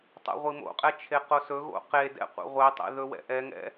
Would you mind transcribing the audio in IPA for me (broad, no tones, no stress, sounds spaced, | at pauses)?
tˤ ɛ̰ ʁʷ i m o̰ qʼ ɛ t͡ʃʰ e q o s ɵ ɣ o̰ q e d ɛ̰ qʷ ḛ ʁʷ e tˤ ḛ ð ɵ w ɛ̰ ʔ ɛ ŋ ɛ̰